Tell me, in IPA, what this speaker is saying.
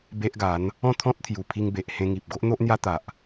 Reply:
b e˦ ʔ ɡ a˨˦ n | ɔ̃˥˧ t̪ʰ ɔ̃˦ t̚ t̪ʰ j u˨˩ pʰ i˧ ŋ b e˨ ʔ h ẽ˧ ŋ i˨ p̚ ɡ o˦ ʔ n̪ o˦ ʔ n̪ j a˦ t̪ a˨ ʔ

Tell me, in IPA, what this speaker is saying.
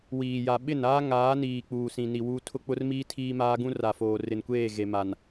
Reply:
w iː˨ j a˨ ɓ ɪ˦˨ n aː˦ ŋ aː˨˦ n iː˨ k͡p uː˨ s ĩ˨ n i˨ w uː˦ tʰ ʊ˦ k͡p ʊ˦ r m iː˦ tʰ iː˦ m aː˦ ɡ ũ˦ r a˨ f oː˨ r ɪ˨ n kʷ eː˦˨ ɣ e˨ m a˨ n

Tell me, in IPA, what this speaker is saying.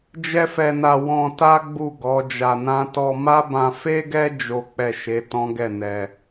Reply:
d͡ʒ ɛ˦ f ɛ˧ n a˧ w ɔ̃˧ t a˦ ɡ͡b u˦˨ ɡ ɔ˨˦ d͡ʒ a˧ n ã˦ t ɔ˧ m a˦ b ã˧ f e˦ ɡ ɛ˦ d͡ʒ o˦ k͡p ɛ˦˨ ʃ e˨˦ t ɔ̃˦ ɡ ɛ˦˨ n ɛ˧

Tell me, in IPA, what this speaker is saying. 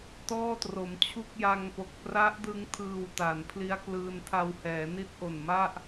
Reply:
t ɔː˥˩ t r o˩˦ m t͡ɕʰ u˥˩ k̚ j a˧ ŋ p o˨˩ k̚ p r a˦˥ ʔ d ɯ˧ ŋ tʰ ɯː˨˩ w t a˩˦ n pʰ l i˦˥ a̯ k l ɯː˧ n tʰ a˧ w h ɛː˩˦ n i˦˥ t̚ ʔ o˨˩ n m a˥˩ ʔ

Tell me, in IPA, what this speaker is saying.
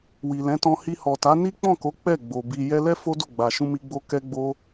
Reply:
w i˨ l ɛ̃˨˦ t ɔ̃˧ h i˧ h ɔ˨ t a˨˦ n i˦ k͡p ɔ̃˦˨ k o˨˦ k͡p ɛ˦˨ ɡ͡b o˨ b i˧ j ɛ˧ l ɛ˦ f o˦ d o˦˨ ɡ͡b a˨ ʃ ũ˧ m i˧ ɡ͡b o˧ k ɛ˦ ɡ͡b o˦

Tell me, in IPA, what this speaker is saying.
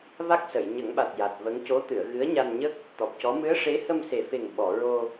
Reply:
v a˦˥ k̚ s ə˨˩˨ j ɲ ə˨˩˦ ŋ ɓ a˨˩ t̚ j a˨˩ t̚ v ə˧˥ ŋ c o˧˥ t̪ ɨ˨˩˨ ə̯ ɣ ɨ˧˥ ə̯ ɲ a˧ n ɲ ə˦˥ k̚ | t̪ ɔ˨˩ p̚ c ɔ˧˥ m ɨ˧˥ ə̯ ʂ e˧˥ h ə˧ m s e˨˩ f e˨˩ ŋ ɓ ɔ˨˩˨ ɹ o˧

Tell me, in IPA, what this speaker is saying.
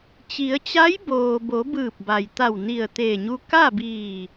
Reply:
t͡ɕ i˩˧ ə̯ t͡ɕ a˧˥ j b oː˩ b o˩˧ b ɯː˧˩ p̚ b a˩ j t̪ a˧˩ w n i˧˩ ə̯ t̪ eː˧˩ ɲ u˧ k a˥˨ b iː˧˩

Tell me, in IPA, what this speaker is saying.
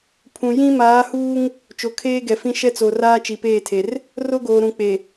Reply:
pʰ ũ˨ j ĩ˦ m aː˨˦ h uː˦ ŋ | t͡ʃ o˨ kʰ eː˦ ɡ ɛ˨ f ĩ˦ ʃ ɛ˦ t͡s o˨ r aː˦ t͡ʃ i˨ p eː˦˨ tʰ e˨ r | r o˦ ɡ oː˨ ɾ ũ˨ k͡p e˨

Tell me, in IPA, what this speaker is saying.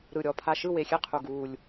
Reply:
ɾ ɯ˨˩ ɾʲ ɔ˨˩ pʰ a˨˩ ʃ ɯ˦˨ w e˨˩ xʲ e˦˨ qʰ u˨˩ ɡ uː˨˩ lʲ

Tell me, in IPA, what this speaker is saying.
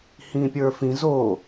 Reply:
h ĩ pʲ ə˞ f ĩ z o

